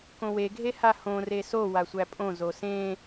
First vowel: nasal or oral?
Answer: nasal